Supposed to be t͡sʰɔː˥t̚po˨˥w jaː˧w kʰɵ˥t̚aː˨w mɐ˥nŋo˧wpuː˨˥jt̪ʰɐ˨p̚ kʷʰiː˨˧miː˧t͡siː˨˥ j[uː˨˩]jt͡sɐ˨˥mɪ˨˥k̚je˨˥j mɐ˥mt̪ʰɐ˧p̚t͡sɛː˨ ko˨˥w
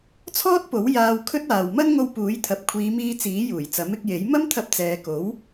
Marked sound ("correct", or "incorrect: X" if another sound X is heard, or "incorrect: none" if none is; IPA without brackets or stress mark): correct